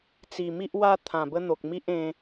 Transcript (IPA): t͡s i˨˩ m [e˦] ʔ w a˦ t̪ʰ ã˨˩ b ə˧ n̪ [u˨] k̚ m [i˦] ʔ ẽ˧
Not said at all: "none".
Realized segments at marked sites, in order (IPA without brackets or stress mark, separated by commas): i˦, o˨, i˦